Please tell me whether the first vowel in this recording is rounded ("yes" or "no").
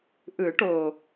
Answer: no